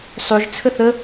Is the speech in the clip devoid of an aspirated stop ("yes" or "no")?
no